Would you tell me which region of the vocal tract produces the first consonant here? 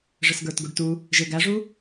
retroflex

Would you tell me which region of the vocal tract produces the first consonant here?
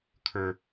velum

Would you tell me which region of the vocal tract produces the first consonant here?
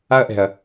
throat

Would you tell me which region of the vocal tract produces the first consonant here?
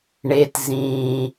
retroflex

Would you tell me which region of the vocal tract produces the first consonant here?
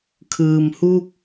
velum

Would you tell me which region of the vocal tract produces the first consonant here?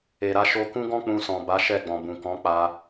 tongue tip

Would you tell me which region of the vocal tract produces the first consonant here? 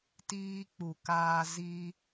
tongue tip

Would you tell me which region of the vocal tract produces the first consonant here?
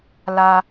tongue tip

